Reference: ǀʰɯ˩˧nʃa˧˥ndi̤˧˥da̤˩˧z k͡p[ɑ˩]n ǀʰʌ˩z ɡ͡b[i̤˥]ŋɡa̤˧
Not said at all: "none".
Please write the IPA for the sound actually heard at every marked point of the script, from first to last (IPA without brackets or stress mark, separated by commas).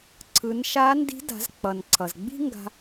ʌ˩, i̤˥